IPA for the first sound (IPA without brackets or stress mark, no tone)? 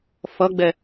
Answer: f